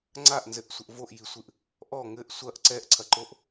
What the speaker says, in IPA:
ŋ͡ǀ a ʔ n z ɘ ʔ sʷ ɘ ʔ v o ʔ j i sʷ ɨ ʔ | ʔ ɔ ŋ ɘ ʔ sʷ ɐ ʔ ǀ ɛ ʔ ǀʰ ɐ ǃ o ʔ

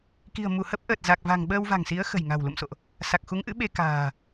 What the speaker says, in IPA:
k i̤˨˩ ə̯ m u˧˩ h ə˦˥ p̚ ʔ əː˨˩ t̚ z a˨˩ k̚ v a̤˨˩ ŋ ɓ əː˧ w v a̤˨˩ ŋ s i˨˦ ə̯ x ə̤˨˩ j ŋ a̤˨˩ w l ṵ˧˨ m s o̰˧˨ ʔ | s a˨˩ k̚ x u˨˦ ŋ ʔ ɨ̰˧˥ ɓ e˧ k a̤ː˨˩

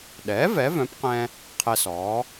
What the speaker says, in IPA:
ɗ ɛː˩˥ v ɛ˩˥ v œ̃˩˥ p q ɛ̃˧ | qʰ ɛ˧ s ɔː˩˥

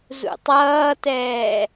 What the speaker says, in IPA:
z ṵ tˤ ʌː t ɛː

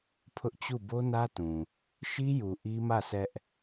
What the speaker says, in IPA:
pʰ ʊ˦ ʔ t͡ɕ u˦˨ b o˦ n ä˦ t ũ˨ | ʃ i˦ j u˨ ʔ i˦ m ä˦˨ s ɛ˦ ʔ

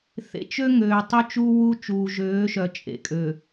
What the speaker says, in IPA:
θ ḛ˨ t͡ʃ ø˦ ŋ øː˨ tˤ ø˦ t͡ʃ u˦ w u˦ t͡ʃ uː˨ ʒ øː˨˦ ʃ œ˨ t͡ʃʼ ḛ˨ kʼ ø˨

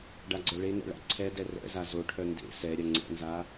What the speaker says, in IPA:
ɖ a ɡ͡ǀ ɛ ɭ e n ɛ̰ ɭ a̰ ǀʰ ɛ d ɛ r ɛ̰ z a z o ʈʰ œ n d ḛ s ɛ ɾʲ ɐ ŋ͡ǀ ɛ̰ n z a

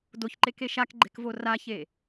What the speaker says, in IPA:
d o ç ǃ e k e ʃ a k ɡ͡ǃ e̤ k v o r a ç e

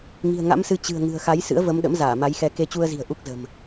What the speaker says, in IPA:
ŋ i̤˨˩ ə̯ ŋ a̰˧˥ m s ɨ˨˦ t͡ɕ ɨ̤˨˩ ə̯ ŋ ɨ̤˨˩ ə̯ x a˨˦ j s ɨ̰˧˥ ə̯ v ə˨˦ m ɗ ə̰˧˥ m z aː˧˩ m a˨˦ j x ɛ˧ k e˧ t͡ɕ u˧ ə̯ z i̤˨˩ ə̯ ʔ u˦˥ k̚ z ə̤˨˩ m

